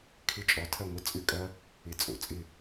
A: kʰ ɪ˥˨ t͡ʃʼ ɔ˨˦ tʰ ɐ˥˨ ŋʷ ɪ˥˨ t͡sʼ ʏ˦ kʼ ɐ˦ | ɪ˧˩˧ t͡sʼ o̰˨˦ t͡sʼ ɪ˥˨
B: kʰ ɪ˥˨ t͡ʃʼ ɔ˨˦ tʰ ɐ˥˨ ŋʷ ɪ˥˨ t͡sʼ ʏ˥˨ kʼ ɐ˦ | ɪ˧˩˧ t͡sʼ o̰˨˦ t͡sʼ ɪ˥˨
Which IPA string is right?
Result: B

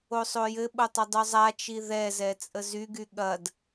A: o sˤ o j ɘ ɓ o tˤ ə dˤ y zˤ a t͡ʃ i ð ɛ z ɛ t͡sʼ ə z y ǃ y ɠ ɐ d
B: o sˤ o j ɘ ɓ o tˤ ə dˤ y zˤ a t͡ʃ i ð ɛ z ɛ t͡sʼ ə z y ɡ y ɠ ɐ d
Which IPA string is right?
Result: B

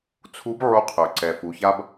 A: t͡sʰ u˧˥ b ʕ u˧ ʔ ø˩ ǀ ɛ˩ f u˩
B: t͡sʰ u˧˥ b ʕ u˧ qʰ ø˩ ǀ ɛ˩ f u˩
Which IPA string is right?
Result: B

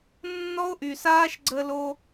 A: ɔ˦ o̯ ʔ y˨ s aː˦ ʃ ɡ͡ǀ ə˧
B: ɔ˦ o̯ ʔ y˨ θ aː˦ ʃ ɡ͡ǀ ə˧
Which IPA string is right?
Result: A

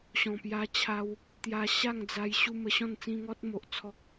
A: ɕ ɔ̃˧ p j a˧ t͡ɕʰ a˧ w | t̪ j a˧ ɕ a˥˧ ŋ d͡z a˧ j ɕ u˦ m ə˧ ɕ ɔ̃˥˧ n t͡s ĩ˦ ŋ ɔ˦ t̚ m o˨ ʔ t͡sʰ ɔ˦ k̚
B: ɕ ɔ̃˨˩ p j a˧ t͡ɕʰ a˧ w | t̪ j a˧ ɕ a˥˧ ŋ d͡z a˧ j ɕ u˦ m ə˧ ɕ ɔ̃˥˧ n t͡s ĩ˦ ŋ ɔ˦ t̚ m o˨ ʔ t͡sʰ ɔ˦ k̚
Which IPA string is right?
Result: B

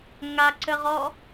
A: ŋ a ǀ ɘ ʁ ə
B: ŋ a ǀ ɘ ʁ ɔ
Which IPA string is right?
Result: B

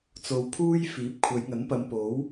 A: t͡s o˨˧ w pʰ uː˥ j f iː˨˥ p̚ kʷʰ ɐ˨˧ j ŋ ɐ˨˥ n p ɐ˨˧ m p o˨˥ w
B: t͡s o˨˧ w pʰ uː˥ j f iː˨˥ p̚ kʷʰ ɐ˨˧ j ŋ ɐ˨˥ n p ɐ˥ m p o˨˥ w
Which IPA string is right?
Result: A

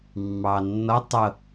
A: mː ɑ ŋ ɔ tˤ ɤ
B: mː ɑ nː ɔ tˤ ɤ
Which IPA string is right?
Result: B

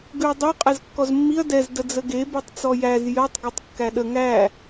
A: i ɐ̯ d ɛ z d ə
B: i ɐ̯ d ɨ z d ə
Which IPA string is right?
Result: A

